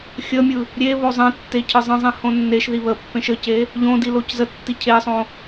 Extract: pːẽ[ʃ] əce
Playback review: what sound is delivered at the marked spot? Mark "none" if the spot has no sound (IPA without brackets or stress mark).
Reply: ʃ